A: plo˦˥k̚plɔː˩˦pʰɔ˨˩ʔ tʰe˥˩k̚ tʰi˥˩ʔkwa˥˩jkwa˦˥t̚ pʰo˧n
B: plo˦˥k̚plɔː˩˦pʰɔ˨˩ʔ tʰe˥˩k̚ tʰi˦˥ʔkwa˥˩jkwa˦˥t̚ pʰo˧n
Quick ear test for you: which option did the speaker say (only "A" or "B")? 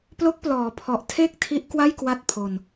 B